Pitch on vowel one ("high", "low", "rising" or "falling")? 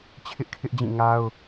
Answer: high